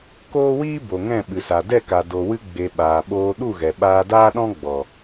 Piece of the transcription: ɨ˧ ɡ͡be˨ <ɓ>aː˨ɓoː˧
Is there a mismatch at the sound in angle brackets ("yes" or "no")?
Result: no